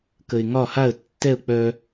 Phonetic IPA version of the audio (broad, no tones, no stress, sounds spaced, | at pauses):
k ə ɪ̯ ŋ ɒ h a ə̯ tː ɛ ʊ̯ k͡p œ